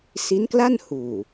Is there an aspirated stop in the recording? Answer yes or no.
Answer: no